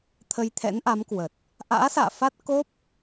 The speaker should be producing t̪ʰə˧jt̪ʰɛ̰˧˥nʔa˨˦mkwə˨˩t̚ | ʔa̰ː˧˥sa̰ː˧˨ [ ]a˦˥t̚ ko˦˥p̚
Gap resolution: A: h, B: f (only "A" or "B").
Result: B